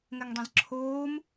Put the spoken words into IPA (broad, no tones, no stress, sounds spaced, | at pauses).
ŋ ɛ ŋ dˤ ĩ z ǁʰ oː m